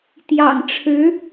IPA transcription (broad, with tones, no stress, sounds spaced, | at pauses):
t̪ j ɑ̰˨˩ ŋ ʈ͡ʂʰ ɻ̩˧˥